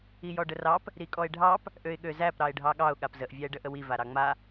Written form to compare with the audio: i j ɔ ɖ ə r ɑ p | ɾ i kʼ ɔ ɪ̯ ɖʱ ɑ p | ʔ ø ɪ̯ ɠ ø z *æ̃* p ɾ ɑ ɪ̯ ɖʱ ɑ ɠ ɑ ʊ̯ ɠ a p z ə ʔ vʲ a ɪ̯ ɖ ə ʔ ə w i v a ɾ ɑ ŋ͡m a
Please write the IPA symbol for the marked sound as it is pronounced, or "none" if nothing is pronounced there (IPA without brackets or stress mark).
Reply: æ